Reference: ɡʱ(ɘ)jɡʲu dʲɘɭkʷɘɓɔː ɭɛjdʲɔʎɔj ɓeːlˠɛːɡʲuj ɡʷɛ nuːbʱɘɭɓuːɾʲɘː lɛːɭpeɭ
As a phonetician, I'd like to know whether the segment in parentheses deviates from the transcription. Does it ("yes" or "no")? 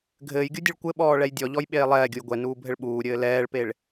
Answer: yes